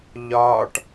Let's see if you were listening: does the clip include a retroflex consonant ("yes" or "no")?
yes